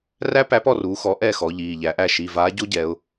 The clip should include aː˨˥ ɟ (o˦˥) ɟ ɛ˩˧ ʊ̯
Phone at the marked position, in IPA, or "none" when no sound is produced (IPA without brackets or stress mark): o˦˥